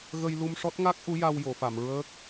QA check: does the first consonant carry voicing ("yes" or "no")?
yes